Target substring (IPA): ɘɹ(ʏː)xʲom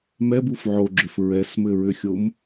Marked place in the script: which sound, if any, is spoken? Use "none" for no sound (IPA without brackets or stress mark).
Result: ʏ